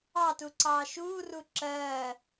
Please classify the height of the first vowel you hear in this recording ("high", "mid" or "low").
low